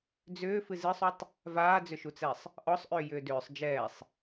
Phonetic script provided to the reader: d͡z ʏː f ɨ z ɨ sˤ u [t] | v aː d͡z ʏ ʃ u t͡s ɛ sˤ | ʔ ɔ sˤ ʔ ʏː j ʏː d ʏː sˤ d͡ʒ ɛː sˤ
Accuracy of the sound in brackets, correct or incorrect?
incorrect